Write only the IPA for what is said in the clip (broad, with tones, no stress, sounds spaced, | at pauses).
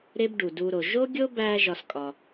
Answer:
ɾ e˦ b ɖ u˨ d u˧ ɾ o˨ ʒ o˦ ɡʲ o˦ b æ˧ ʒ ɒ˦ s kʼ ɒ˧